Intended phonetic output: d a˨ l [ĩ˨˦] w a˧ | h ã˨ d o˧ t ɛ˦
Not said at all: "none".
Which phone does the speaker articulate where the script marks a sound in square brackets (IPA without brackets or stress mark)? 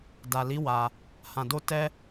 i˨˦